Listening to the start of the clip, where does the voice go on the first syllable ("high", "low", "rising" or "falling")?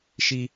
high